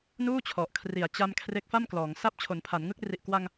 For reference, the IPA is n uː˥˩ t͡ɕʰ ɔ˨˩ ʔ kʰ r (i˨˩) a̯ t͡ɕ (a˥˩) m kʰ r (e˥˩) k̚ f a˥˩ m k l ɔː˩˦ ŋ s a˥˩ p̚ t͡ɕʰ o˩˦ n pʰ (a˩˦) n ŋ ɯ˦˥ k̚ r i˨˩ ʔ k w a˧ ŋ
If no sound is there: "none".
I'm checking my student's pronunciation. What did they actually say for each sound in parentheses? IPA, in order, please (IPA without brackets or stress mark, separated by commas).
i˨˩, a˧, e˦˥, a˩˦